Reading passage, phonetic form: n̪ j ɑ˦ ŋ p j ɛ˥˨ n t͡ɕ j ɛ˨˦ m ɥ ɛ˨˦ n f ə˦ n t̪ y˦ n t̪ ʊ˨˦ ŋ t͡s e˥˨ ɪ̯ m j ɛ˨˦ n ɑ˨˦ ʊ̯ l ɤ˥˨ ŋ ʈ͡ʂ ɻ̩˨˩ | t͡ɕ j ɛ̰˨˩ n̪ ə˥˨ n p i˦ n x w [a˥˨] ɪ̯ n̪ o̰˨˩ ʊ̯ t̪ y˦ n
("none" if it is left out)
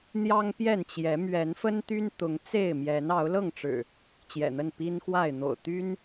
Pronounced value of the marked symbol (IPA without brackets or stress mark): a˥˨